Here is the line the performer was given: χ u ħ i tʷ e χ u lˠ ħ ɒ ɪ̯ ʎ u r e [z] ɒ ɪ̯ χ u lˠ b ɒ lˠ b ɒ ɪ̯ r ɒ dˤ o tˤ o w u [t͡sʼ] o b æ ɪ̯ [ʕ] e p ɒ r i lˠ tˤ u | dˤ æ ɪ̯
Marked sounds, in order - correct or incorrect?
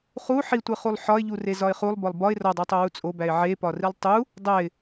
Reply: correct, correct, correct

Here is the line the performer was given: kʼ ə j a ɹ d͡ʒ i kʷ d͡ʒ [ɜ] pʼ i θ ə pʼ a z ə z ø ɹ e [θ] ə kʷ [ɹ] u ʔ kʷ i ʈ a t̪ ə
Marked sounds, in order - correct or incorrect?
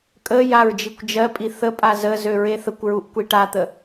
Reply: correct, correct, correct

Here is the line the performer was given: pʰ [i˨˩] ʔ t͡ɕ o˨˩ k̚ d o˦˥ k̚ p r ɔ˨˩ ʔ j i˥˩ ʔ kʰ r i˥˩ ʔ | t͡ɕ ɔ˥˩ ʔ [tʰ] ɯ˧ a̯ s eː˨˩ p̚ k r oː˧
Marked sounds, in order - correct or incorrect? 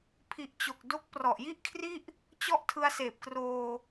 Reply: correct, correct

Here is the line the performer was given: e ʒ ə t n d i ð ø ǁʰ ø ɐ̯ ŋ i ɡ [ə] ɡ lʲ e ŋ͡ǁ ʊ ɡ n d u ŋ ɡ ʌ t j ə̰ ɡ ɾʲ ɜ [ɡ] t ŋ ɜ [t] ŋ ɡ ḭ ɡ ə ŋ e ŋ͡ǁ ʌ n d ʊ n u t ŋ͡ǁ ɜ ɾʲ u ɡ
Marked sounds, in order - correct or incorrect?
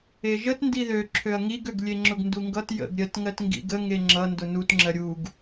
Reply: incorrect: ø, incorrect: none, correct

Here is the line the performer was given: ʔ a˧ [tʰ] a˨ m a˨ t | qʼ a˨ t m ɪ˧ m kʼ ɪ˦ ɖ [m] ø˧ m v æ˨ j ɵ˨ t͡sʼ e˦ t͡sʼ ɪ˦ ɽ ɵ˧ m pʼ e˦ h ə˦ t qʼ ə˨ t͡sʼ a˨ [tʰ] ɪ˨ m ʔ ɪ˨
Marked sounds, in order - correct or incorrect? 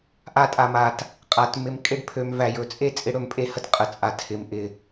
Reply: incorrect: tʼ, incorrect: pʰ, correct

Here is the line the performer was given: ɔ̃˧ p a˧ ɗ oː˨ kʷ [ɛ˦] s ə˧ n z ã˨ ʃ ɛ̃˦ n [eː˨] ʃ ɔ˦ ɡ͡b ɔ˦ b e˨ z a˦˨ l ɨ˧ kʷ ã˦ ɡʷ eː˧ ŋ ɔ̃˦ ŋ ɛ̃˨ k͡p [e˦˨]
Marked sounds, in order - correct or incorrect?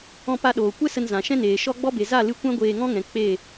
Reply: correct, correct, correct

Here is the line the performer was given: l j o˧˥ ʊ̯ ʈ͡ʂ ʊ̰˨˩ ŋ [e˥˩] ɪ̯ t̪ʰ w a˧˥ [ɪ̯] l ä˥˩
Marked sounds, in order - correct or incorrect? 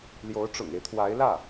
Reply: incorrect: e˦, correct

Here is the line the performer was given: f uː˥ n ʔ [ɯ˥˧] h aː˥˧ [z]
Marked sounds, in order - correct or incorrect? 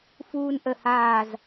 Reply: incorrect: ə˥˧, correct

